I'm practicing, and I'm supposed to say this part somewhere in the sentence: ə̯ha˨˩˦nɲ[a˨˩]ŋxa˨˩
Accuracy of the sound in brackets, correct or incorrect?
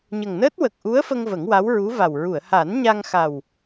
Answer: incorrect